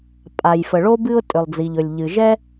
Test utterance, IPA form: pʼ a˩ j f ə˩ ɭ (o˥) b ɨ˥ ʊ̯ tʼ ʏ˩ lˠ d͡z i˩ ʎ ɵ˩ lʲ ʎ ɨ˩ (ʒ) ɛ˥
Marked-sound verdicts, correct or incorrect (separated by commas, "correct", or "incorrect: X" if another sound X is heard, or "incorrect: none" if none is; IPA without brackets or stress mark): correct, correct